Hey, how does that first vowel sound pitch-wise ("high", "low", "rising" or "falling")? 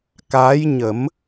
rising